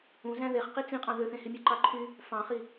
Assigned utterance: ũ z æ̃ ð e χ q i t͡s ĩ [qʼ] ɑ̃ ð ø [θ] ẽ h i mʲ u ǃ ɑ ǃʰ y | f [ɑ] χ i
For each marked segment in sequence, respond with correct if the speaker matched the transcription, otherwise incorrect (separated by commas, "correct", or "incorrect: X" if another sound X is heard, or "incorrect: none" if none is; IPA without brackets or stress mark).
correct, correct, incorrect: ɑ̃